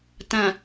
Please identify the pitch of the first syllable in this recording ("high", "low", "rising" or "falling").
low